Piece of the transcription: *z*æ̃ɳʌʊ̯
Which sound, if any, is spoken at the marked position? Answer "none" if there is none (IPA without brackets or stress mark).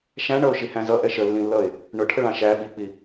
ʃ